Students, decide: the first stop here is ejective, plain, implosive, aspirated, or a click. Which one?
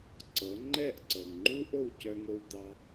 click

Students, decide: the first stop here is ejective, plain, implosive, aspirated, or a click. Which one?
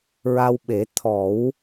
implosive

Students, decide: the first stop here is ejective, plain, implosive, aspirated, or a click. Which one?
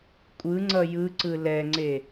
ejective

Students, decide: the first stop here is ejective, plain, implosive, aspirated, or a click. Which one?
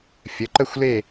click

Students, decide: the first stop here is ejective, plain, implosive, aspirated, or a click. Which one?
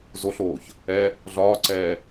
click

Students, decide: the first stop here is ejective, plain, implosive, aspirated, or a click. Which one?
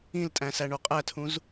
ejective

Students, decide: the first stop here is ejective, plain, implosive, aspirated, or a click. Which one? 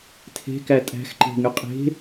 aspirated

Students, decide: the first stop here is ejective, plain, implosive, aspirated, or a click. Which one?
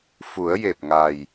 plain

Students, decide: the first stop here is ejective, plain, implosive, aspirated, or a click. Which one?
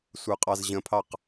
ejective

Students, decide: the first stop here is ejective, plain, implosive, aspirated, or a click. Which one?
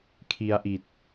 aspirated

